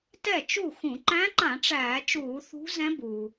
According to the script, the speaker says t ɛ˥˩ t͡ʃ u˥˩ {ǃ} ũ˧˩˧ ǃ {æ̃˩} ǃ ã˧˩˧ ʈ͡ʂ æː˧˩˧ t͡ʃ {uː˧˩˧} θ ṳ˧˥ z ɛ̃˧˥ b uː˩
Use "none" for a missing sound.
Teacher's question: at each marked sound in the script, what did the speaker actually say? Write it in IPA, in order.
x, æ̃˧˥, uː˧˩˧

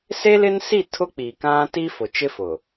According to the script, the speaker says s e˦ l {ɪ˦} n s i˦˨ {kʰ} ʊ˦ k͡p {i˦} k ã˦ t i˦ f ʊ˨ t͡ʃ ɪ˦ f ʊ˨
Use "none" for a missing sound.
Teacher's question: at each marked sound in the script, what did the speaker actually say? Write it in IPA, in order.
ɪ˦, tʰ, i˨

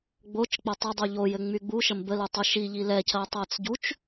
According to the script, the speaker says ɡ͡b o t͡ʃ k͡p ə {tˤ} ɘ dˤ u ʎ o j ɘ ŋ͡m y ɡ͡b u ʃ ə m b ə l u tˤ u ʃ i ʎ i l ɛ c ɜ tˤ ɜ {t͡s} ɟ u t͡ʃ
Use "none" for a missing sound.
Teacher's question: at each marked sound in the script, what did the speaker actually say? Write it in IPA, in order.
tˤ, t͡s

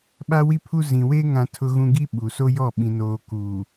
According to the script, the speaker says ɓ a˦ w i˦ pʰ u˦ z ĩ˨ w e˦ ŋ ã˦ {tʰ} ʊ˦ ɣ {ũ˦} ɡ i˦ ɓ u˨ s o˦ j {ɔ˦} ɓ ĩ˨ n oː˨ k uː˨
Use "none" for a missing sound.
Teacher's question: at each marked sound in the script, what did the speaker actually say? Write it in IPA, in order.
tʰ, ũ˦, ɔ˦˨

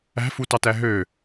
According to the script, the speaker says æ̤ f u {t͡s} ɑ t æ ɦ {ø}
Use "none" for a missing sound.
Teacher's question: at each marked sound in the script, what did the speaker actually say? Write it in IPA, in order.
t, ø

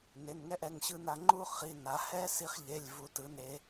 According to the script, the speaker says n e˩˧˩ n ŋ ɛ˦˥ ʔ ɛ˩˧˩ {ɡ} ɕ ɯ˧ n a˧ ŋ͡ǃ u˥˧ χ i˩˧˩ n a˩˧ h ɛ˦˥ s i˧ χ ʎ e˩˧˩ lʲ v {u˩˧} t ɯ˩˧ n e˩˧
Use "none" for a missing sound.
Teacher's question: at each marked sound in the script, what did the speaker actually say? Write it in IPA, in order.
ŋ, u˩˧

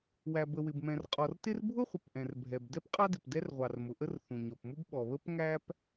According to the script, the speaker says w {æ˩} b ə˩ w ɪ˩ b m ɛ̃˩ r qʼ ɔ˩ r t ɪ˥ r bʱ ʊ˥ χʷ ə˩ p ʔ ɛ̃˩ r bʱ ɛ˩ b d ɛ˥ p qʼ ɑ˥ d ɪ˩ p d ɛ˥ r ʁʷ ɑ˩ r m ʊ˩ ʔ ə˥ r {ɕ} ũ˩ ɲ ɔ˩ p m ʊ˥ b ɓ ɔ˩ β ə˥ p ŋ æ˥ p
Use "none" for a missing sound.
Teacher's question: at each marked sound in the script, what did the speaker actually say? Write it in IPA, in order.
æ˩, θ

